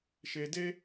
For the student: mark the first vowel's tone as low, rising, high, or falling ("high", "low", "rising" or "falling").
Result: low